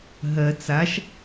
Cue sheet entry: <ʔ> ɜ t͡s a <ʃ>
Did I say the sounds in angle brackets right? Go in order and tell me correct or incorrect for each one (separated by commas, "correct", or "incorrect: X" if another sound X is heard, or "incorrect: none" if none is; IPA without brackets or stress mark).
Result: incorrect: ɦ, correct